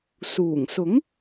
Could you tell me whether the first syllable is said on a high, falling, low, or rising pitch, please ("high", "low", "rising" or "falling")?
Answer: low